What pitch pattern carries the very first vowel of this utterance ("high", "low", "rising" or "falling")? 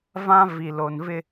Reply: high